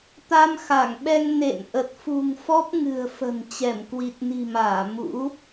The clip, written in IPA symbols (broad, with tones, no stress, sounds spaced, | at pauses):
t̪ a˧ m x a˧˩ ŋ ɓ ɛ˧ ŋ n ḛ˧˨ n ʔ ə˨˩ t̚ f ṳ˨˩ ŋ f ɔ˦˥ p̚ ŋ ɨ̤˨˩ ə̯ f ə̤˨˩ n t͡ɕ ɛ˧˩ m k w i˨˩ t̚ n i̤˨˩ m aː˧˩ m ṵ˧˥